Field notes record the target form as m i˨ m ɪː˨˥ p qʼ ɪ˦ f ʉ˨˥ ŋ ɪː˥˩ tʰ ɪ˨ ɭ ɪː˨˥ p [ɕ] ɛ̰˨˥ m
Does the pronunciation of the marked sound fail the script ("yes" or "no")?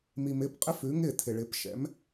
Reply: yes